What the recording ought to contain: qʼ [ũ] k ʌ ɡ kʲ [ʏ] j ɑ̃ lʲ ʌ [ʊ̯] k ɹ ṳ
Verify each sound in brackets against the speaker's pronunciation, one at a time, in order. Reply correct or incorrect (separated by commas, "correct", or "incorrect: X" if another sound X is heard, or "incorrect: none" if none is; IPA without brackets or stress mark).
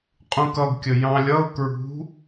correct, incorrect: ə, correct